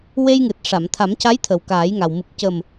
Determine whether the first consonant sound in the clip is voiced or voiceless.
voiced